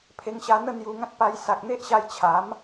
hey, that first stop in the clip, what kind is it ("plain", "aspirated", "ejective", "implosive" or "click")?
aspirated